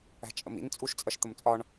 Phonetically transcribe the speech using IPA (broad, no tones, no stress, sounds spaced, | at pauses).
æ̤ t͡ʃʼ ə̰ m ḭ n t͡sʼ u ʃ t͡sʼ ʌ ʃ t̪ ə m t͡sʼ ɒ ɳ